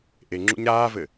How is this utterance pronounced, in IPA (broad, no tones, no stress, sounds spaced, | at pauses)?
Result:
ʔ e ŋ͡ǁ ṵ ɲ ɾ aː v ɘ